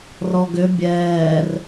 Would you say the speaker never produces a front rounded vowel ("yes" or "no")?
no